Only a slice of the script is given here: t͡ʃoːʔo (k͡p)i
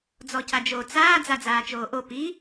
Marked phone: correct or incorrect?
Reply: incorrect